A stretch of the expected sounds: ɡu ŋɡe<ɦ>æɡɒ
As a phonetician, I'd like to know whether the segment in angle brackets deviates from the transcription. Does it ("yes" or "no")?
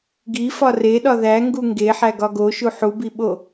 yes